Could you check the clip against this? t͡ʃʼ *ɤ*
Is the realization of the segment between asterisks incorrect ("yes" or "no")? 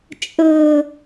no